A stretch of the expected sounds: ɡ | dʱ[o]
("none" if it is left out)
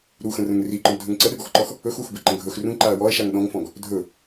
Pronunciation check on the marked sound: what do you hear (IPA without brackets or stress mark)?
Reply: ɵ